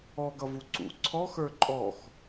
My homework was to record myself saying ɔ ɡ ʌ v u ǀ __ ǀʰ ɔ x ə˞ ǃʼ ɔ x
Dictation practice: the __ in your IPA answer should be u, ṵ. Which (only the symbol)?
ṵ